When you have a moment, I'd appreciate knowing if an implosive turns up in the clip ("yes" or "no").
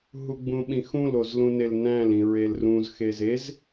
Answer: yes